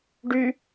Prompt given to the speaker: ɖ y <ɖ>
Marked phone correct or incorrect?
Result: incorrect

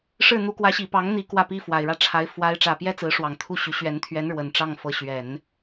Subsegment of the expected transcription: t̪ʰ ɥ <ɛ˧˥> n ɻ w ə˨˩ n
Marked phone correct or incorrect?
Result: correct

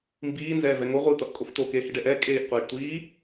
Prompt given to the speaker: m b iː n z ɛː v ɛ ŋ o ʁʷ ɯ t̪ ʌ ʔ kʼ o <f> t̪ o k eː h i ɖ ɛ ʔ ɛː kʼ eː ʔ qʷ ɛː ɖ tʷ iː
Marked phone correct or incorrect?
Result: correct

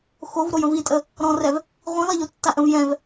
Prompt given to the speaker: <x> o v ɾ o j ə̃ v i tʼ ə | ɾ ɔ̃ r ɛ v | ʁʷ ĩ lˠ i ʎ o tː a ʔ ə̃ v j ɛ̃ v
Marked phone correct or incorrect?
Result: correct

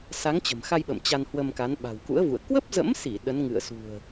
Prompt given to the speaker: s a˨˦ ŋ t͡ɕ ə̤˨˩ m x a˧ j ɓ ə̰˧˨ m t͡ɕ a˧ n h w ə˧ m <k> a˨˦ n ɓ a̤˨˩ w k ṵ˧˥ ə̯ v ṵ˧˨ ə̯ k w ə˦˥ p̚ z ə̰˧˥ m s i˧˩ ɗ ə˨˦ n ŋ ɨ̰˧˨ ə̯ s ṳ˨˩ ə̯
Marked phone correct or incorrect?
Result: correct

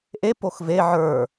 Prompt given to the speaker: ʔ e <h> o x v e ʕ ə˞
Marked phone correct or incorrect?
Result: incorrect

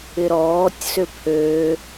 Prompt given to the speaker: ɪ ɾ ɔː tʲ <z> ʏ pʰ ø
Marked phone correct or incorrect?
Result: incorrect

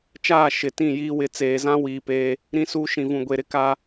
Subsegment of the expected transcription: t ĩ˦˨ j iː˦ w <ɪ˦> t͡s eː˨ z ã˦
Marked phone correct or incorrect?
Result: incorrect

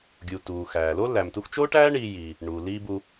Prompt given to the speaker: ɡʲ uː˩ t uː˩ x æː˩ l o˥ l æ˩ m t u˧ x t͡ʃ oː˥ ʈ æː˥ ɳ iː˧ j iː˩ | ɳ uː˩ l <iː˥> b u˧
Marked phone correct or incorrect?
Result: correct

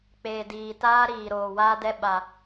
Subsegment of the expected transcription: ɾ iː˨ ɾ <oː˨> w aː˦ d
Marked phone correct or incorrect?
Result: correct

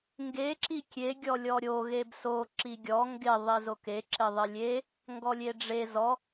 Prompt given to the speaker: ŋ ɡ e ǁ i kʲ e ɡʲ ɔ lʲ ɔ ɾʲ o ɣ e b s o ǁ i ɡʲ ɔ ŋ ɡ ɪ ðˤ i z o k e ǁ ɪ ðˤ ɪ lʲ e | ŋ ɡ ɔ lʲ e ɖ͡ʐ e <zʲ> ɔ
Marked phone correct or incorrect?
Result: incorrect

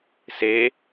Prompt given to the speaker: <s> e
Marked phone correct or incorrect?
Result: correct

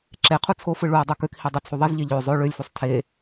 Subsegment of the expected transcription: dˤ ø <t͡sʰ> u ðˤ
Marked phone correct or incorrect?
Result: correct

